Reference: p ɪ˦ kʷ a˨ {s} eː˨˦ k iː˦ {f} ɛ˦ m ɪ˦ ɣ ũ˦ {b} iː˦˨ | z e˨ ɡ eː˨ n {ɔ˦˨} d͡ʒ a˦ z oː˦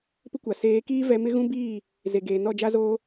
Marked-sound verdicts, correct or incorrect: correct, incorrect, correct, correct

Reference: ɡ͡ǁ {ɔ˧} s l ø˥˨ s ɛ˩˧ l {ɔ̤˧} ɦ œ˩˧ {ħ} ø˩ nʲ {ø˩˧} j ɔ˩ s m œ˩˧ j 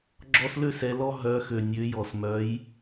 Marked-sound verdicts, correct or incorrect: correct, incorrect, incorrect, correct

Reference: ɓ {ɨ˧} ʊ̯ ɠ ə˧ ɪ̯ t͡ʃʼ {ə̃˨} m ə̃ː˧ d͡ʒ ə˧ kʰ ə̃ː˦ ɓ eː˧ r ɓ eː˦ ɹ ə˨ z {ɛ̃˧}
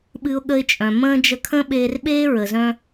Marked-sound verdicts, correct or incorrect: correct, incorrect, incorrect

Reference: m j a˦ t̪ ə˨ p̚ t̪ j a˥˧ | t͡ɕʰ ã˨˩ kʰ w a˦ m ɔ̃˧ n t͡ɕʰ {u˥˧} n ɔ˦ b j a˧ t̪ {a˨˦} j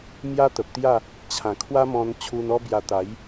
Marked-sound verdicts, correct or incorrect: incorrect, correct

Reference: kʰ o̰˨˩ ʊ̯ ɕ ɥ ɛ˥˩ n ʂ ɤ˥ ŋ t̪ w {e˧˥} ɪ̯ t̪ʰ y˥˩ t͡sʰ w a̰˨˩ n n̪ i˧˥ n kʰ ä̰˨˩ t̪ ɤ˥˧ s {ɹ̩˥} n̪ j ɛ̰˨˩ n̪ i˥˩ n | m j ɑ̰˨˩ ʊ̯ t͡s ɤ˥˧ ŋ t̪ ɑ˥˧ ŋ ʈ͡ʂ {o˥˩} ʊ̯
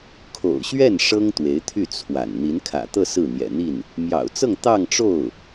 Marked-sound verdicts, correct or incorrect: correct, incorrect, correct

